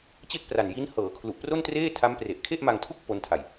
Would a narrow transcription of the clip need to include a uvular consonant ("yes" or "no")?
no